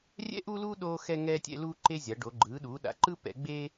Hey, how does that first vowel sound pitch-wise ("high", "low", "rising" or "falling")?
high